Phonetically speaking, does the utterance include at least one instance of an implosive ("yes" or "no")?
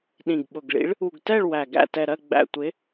yes